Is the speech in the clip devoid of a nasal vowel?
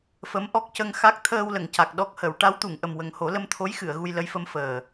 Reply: yes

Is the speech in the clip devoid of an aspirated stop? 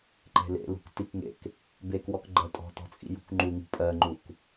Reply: yes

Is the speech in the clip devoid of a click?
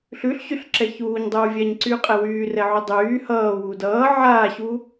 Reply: no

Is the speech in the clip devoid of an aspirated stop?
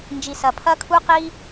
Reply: no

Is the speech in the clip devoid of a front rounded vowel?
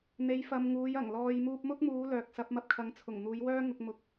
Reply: no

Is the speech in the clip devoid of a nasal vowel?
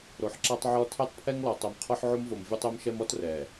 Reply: yes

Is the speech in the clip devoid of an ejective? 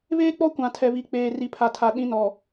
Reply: yes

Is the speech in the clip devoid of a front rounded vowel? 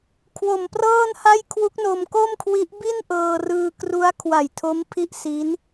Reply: yes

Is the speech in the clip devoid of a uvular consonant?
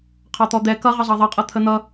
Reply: no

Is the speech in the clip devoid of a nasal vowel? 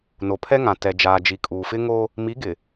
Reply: no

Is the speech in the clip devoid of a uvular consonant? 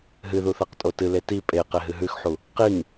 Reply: no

